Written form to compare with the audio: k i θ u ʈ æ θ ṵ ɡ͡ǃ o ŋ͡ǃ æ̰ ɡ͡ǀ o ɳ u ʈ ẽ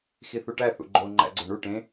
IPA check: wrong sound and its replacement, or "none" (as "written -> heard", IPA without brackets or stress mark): k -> x